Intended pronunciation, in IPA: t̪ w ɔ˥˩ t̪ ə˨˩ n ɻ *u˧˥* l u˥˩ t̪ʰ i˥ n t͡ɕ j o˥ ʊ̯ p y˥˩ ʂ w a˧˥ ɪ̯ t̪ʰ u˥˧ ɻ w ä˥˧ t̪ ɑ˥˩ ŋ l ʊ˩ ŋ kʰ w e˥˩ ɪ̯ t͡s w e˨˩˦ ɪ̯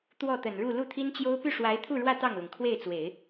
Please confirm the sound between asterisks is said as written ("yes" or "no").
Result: no